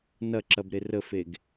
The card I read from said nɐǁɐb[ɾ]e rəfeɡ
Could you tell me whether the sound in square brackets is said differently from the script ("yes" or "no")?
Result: no